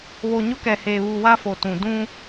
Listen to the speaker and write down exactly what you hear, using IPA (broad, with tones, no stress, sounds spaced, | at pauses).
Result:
β o˨ ɲ ʊ˦ k ɛ˨ h eː˨ β u˨ w a˦ f o˨ t ũ˨ d ũ˦